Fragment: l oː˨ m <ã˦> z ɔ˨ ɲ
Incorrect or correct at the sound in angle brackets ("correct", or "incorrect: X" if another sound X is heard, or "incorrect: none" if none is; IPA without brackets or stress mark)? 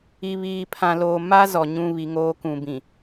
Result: incorrect: a˦